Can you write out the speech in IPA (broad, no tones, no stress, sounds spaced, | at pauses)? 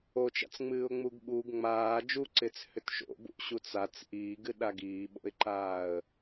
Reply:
o t͡ʃ a̰ t͡s ŋ͡m ɨː ʊ̯ ŋ͡m u ɡ ɓ uː ɡ ŋ͡m aː d͡ʒ u ǀ ɪː t͡s h ʏ t ʃ o̰ b ṵ ʔ ɕ u t͡s a t͡s ʔ iː ɡ ɨ ɗ a ɡ iː ɓ o̰ ɪ̯ ǃ aː ə̯